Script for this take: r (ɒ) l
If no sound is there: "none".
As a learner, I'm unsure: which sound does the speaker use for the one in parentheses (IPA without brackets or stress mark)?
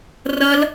ʌ